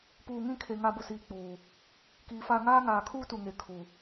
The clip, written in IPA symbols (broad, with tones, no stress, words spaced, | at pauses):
puː˨ŋĩ˦˨kʰe˨ ŋa˦˨bʊ˦ siː˨k͡puː˨ | kiː˨fa˦˨ ŋaː˦ŋaː˨kʰuː˦ tu˨ŋe˨ kʰu˨